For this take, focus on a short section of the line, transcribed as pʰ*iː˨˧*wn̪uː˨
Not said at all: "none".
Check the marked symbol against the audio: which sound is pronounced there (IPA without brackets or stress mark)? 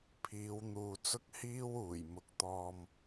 iː˨˧